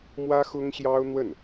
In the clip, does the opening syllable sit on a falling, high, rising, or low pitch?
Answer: high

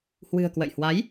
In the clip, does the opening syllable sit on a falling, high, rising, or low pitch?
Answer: low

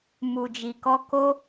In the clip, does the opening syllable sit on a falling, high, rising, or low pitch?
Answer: low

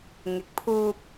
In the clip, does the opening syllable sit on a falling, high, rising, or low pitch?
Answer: rising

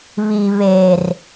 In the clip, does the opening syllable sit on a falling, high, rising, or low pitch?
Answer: low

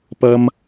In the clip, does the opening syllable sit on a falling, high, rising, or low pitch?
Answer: high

